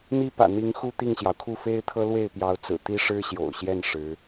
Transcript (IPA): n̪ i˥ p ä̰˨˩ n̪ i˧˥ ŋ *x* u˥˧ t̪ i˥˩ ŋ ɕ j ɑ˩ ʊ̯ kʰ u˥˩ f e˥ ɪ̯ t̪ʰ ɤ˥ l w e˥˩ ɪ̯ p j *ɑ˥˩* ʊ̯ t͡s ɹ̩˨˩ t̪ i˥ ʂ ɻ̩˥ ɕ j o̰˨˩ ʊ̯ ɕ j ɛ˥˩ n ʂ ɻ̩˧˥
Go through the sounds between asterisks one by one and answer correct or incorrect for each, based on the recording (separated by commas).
correct, incorrect